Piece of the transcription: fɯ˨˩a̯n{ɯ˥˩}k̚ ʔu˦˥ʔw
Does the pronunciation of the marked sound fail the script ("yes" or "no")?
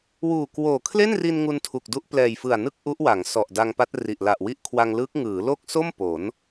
no